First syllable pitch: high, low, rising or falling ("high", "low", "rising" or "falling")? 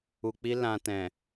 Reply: low